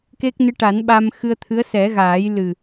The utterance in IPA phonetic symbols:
k e˦˥ k̚ n ɨ˧˥ ʈ a˨˩˦ n ɓ a˧ m x ɨ˧ ə̯ t̪ʰ ɨ˧˥ ə̯ s ɛ˨˩˦ ɣ aː˨˩˦ j l ɨ˨˩

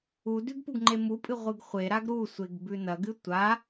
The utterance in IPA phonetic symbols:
u d ʉ ɡ p u ɡ ŋ͡ǃ e m u pʼ ɨ ʁʷ ɨ ɡ χʷ e ɾ a ɡ ɾ u sʷ e ɡ b ʉ n ɐ ɡ ɨ tʷ a

